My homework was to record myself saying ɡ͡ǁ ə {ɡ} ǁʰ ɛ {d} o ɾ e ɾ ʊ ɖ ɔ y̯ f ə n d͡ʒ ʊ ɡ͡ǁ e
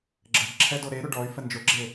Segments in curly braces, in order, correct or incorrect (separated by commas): correct, correct